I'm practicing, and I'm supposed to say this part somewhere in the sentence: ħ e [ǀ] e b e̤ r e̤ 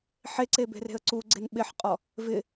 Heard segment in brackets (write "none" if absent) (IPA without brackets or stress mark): ǀ